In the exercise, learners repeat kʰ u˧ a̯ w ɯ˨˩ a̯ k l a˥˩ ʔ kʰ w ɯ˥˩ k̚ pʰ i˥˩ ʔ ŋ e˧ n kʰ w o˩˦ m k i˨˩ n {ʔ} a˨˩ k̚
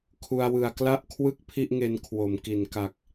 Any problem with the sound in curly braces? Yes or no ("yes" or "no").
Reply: yes